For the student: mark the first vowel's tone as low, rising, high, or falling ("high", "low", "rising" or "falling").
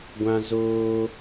high